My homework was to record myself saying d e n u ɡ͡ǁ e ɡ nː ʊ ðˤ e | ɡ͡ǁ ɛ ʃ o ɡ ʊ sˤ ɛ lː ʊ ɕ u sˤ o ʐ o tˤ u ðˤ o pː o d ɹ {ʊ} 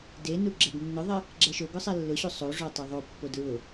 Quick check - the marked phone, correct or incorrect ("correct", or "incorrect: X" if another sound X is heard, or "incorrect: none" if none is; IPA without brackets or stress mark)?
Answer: correct